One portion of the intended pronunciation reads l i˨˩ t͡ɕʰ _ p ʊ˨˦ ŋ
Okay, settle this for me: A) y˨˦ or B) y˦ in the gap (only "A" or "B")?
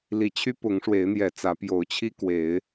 B